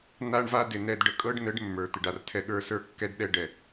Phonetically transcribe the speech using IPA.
n̪a˦ɳva˦dɪ˨ nɛ˨dɖə˨kʼɤ˦ɖ nə˨˦ɖ mːə˞˨t̪ɪ˨ɖa˨rtʰɛ˦ ɠə˞˦sə˞˦kːɛ˦dɗɛ˦ ɖɛ˨

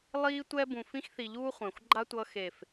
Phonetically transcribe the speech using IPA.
lˠiː˦tʷɛ˦ bũ˨fĩ˧xθi˨ʎuː˧ χʷɛ̃˨xʷɡ͡ǃa˦tʷʌ˧ xe˨f

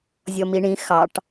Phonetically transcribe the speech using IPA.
zʲɔmiɳĩ xɑʈ

